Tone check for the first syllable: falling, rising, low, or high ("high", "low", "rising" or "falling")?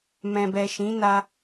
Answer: low